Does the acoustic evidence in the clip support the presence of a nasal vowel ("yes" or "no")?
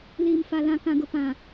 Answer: yes